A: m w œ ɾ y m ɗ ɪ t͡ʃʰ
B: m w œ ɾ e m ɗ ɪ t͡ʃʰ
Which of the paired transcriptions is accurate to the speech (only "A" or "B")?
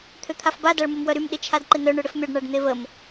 A